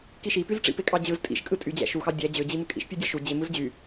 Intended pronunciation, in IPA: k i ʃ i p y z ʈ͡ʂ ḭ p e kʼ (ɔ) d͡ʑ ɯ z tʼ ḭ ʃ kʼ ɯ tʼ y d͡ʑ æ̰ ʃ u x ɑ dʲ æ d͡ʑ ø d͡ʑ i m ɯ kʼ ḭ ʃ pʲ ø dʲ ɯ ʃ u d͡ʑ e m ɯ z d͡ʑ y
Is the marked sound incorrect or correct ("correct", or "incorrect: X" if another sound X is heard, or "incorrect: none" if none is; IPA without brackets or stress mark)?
incorrect: ɑ